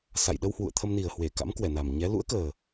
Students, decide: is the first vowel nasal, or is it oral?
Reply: oral